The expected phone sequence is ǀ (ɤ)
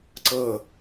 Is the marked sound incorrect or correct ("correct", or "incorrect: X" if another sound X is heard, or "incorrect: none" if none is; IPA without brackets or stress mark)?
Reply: correct